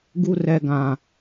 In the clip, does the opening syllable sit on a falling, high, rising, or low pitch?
high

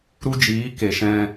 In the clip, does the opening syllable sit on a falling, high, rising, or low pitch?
high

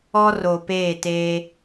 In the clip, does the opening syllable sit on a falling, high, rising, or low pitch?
high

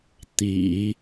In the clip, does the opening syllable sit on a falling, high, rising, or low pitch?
low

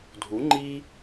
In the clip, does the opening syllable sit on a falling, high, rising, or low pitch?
rising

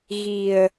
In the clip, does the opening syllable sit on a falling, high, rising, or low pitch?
low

